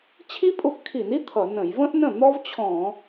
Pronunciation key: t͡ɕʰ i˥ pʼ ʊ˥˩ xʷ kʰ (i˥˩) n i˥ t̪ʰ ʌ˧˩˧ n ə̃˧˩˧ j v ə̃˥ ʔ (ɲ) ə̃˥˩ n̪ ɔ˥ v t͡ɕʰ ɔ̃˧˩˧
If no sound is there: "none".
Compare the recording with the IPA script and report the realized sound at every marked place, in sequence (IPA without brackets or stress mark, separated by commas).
i˧˩˧, n